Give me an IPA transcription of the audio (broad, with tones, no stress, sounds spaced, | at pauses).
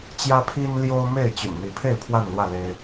t͡ɕ j ä˦ pʰ i˦ n l j o˦ ʊ̯ m e˥˨ ɪ̯ t͡ɕ y̰˨˩ n n̪ i˨˦ pʰ e˥˨ ɪ̯ pʰ w a˥˨ n l w ä˥˨ l e˦ ɪ̯